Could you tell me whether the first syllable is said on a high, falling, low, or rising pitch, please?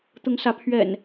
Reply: rising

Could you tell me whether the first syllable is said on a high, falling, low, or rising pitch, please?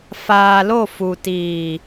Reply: low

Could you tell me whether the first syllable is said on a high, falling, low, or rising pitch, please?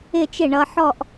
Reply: falling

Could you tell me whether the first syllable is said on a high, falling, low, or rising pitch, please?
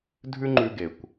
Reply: high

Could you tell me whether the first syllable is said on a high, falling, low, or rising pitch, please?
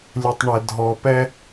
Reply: low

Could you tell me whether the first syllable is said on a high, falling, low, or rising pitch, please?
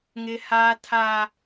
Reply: high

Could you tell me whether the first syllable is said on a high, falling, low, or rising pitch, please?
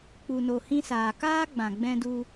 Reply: low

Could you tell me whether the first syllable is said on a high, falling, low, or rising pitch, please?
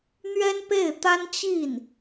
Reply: high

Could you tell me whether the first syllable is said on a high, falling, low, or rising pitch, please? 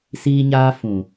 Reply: high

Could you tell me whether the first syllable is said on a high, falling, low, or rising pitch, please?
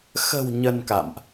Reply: low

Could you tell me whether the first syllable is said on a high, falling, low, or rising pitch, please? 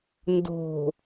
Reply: low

